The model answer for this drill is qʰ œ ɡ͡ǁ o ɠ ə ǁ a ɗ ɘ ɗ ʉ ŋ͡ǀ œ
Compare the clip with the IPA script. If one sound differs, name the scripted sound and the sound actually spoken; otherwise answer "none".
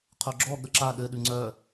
o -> ɔ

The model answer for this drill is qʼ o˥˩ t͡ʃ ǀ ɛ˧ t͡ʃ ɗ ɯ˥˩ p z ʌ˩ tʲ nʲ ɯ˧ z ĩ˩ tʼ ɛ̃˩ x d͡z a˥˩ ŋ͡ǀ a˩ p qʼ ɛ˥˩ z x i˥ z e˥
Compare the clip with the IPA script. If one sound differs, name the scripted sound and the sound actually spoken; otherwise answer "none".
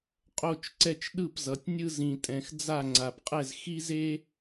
none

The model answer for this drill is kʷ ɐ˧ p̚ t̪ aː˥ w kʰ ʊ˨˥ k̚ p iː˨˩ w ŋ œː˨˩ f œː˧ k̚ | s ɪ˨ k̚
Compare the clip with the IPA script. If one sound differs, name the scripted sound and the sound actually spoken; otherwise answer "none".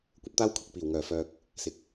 none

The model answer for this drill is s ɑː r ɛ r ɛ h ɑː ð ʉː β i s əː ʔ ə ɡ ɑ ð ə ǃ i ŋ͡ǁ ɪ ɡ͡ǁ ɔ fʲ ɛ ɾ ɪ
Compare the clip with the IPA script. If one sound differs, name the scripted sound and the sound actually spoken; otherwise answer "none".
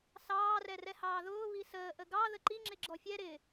ʉː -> ʊː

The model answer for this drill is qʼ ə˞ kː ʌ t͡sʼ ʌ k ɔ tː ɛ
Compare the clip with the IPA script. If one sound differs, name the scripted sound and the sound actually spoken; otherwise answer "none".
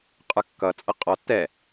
k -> qʼ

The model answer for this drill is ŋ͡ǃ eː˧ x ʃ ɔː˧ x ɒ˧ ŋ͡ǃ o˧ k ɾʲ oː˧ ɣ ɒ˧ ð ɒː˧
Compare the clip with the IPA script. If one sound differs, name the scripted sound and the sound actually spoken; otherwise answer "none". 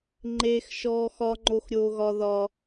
k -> x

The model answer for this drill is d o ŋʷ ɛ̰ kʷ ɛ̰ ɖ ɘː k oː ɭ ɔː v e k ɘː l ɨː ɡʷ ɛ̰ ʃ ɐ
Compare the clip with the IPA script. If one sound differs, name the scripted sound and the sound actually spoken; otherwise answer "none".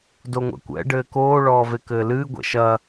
none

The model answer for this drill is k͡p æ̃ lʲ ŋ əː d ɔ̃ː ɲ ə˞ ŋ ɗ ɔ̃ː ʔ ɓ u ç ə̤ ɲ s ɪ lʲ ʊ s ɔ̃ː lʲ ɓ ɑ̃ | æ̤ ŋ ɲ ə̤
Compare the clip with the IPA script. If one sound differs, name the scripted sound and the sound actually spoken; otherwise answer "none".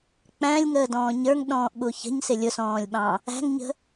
none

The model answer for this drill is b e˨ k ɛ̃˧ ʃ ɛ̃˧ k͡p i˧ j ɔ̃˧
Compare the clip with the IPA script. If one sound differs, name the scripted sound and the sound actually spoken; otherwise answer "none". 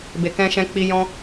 none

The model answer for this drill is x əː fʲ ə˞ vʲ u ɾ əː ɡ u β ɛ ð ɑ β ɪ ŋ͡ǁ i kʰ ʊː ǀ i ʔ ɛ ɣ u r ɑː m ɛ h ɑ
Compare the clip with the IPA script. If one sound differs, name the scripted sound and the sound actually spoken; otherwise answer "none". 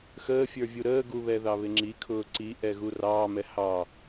none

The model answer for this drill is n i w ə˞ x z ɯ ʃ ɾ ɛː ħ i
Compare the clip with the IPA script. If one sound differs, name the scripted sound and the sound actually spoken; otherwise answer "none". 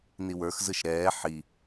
none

